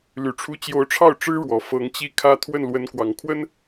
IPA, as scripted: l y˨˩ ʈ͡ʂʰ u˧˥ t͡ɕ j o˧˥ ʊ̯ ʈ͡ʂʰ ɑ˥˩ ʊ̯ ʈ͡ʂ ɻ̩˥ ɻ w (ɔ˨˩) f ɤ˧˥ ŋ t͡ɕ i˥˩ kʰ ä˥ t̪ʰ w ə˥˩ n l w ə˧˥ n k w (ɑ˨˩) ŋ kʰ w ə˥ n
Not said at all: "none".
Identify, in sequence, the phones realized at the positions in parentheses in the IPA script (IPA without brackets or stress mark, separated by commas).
ɔ˨˩, ɑ˨˩